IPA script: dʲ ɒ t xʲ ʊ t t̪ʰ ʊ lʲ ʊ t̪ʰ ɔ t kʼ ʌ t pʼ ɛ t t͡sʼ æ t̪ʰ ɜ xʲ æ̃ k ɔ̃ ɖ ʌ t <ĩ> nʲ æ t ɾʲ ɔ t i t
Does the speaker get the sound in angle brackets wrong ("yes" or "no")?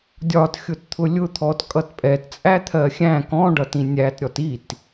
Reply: no